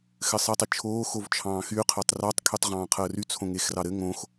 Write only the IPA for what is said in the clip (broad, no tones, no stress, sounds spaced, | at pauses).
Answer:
x ɘ sˤ i tˤ i t͡ʃʰ oː x o v t͡ʃʰ ɑ̃ː x y qʰ əː tˤ r ɑ tˤ kʰ y tˤ ʁ ɑ̃ː qʰ əː r y t͡sʰ õ ŋ e x r ɑ ɾ ɘ ŋ õ x